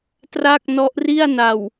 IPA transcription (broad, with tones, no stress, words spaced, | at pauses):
tra˥˩k̚nɔ˦˥ʔri˥˩a̯na˨˩w